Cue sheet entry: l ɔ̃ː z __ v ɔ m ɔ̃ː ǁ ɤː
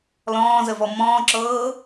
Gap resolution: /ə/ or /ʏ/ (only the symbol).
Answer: ə